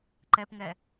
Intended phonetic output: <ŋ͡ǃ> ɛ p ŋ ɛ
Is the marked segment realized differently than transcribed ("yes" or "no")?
yes